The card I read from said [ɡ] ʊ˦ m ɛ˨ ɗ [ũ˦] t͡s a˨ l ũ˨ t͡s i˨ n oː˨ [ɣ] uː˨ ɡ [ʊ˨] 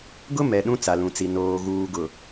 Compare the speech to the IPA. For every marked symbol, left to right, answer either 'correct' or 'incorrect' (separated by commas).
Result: correct, correct, correct, correct